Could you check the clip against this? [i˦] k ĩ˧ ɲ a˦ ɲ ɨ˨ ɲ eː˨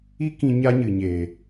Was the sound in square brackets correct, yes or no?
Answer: yes